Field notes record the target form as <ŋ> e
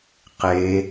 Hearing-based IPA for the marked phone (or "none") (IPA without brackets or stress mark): q